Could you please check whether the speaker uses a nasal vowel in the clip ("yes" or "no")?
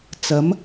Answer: no